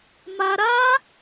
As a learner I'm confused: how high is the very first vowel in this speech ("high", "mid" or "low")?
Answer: low